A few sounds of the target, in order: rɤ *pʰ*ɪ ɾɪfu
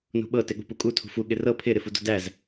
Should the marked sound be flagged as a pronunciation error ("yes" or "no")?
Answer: no